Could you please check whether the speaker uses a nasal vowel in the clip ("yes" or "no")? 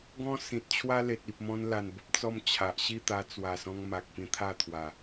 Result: yes